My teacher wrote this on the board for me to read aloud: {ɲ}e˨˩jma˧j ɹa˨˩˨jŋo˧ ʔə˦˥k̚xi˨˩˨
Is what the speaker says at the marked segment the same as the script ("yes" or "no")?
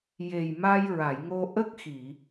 no